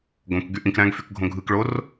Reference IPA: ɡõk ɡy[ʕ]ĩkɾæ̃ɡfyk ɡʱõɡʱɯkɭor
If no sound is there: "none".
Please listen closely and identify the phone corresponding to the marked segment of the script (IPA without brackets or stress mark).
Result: ʔ